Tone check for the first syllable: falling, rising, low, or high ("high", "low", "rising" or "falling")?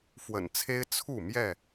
low